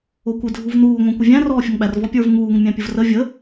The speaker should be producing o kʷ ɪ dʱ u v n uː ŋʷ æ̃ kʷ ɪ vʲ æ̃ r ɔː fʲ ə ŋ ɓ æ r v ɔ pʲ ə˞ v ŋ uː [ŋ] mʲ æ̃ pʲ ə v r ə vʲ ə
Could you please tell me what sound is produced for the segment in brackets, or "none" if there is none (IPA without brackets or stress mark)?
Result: ŋ